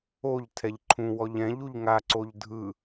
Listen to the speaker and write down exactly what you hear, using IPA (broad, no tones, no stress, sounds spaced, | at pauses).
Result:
o ʎ tʰ ɛ ʎ ǃʰ ũ w ɔ ʎ ɛ̃ ʎ u ʎ ŋ a ǀ o ʎ dʱ ɯ